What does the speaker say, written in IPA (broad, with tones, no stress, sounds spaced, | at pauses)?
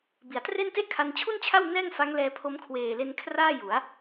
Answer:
b i˩˦ a̯ t r e˥˩ n t e˥˩ ʔ kʰ a˧ n t͡ɕʰ u˥˩ n t͡ɕʰ a˥˩ w n ɛː˥˩ ŋ f a˦˥ ŋ l ɛː˧ pʰ o˦˥ m kʰ w eː˨˩ l e˧ n kʰ r aː˥˩ j u˩˦ a̯